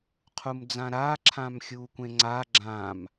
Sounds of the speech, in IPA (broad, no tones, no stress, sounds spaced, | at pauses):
qʰ u m d͡z ã ɾ aː ǁʰ ã m xʲ uː kʷ ẽ ŋ͡ǀ aː ɡ͡ǁ ã m